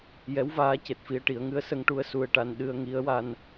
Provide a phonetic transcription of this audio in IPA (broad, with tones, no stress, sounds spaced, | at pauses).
j ɛ˧˥ w v aː˧˥ c e˨˩ t̚ f i˧ ə̯ ʈ i˨˩˦ ə̯ ŋ ɨ˧˥ ə̯ s ə˧ ŋ ʈ u˧ ə̯ s u˧ ə̯ ʈ a˧ n ɗ ɨ˧ ə̯ ŋ i˧˥ ə̯ w a˧ n